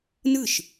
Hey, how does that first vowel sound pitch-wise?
falling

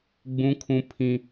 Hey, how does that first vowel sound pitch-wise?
high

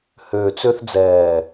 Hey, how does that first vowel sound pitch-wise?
low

